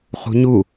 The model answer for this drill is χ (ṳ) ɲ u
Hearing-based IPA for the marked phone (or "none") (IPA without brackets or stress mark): ṳ